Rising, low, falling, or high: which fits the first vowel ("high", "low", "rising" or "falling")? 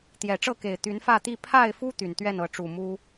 low